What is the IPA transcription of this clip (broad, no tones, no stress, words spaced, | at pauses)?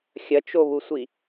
xʲɐt͡ʃoβusʷi